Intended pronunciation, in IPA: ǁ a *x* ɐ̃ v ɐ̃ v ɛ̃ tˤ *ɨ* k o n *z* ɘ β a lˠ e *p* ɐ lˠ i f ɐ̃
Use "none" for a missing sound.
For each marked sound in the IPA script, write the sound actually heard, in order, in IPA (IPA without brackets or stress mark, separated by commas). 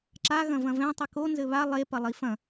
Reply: ɣ, ɨ, z, p